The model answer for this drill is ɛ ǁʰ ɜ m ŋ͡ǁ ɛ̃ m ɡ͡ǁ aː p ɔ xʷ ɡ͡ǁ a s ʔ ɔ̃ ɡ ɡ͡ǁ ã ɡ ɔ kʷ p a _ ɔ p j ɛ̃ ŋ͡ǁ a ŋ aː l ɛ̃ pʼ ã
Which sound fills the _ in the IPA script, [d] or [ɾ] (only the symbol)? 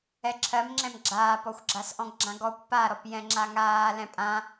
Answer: ɾ